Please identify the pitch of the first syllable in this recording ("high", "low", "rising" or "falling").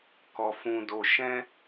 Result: low